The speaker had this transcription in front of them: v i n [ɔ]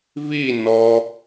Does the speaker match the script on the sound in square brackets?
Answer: yes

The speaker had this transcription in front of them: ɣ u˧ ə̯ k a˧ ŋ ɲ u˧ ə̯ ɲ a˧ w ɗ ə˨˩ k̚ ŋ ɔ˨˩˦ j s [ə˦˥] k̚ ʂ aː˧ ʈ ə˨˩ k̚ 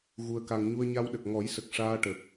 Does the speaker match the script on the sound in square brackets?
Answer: no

